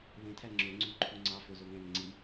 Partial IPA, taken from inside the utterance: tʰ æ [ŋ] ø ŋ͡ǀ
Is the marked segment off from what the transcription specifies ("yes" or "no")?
yes